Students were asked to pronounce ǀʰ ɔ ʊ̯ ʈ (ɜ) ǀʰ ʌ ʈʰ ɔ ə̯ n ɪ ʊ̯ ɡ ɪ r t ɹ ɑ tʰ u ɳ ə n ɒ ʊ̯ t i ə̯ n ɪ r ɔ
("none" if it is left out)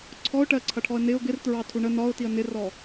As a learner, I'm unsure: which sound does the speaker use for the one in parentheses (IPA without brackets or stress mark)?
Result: ɜ